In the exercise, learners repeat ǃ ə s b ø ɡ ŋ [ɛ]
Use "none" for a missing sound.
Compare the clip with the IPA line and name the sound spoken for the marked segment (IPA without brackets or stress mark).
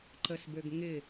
ɪ